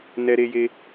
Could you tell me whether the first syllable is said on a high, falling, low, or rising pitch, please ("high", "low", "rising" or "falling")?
high